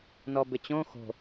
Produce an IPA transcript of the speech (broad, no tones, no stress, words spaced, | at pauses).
nɔbɪt͡ɕõ xo̤